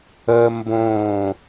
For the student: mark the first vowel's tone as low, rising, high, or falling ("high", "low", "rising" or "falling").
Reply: high